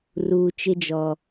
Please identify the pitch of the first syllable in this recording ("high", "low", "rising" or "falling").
low